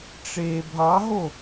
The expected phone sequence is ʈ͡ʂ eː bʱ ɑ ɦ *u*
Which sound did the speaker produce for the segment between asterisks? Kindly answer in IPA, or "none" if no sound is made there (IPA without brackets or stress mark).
o